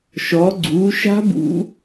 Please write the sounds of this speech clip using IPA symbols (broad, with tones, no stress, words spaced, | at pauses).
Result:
ʃɔ˩˧ɡ͡ǀu˩˧ʃa̤˦˥ bṵ˦˥